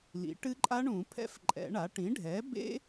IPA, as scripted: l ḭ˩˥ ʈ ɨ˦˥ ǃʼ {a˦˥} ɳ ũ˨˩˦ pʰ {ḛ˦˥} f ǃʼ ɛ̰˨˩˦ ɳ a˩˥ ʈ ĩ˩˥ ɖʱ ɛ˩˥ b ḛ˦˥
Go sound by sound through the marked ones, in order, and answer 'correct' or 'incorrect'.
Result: correct, incorrect

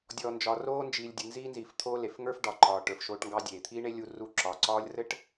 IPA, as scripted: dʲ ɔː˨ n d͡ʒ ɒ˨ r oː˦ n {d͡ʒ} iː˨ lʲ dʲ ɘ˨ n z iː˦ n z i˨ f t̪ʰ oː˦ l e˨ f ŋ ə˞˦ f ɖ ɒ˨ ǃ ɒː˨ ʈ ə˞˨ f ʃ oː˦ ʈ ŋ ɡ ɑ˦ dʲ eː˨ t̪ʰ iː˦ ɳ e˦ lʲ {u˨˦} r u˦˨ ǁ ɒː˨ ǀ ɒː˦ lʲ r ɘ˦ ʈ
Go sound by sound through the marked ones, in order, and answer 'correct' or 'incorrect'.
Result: correct, incorrect

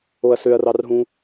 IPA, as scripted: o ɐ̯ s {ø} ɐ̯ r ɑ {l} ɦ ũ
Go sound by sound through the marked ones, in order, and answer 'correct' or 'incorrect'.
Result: correct, incorrect

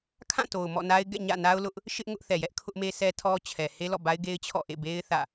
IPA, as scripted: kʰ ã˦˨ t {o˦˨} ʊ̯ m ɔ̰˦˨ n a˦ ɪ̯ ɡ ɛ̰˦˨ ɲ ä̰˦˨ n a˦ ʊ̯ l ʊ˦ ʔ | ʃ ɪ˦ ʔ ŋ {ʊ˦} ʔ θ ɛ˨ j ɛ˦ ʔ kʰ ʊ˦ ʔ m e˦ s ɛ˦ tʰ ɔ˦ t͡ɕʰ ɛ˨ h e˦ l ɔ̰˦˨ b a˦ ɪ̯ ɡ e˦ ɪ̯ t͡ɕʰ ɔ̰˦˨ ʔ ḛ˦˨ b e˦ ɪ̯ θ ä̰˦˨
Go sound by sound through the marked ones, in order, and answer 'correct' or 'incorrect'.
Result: incorrect, correct

